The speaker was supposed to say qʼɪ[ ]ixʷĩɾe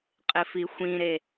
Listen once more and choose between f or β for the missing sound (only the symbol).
f